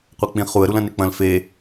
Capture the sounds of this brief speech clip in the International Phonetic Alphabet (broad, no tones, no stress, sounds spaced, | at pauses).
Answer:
qʷ ɛ k͡p ĩ χ u ə̯ ɾ u l ɐ̃ n e k͡p ɐ̃ l f e